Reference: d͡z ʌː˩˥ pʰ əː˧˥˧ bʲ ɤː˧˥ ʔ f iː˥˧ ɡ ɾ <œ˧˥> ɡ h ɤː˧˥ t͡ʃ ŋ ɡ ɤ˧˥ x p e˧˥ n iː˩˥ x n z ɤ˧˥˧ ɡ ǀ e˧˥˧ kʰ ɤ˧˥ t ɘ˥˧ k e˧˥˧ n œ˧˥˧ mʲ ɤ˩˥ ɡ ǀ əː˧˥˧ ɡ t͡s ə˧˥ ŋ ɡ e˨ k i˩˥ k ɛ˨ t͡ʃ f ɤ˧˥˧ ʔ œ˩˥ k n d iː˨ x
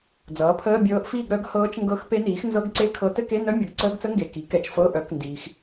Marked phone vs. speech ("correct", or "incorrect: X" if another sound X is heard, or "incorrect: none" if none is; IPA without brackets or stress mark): correct